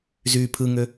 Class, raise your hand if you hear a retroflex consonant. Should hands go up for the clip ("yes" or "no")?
no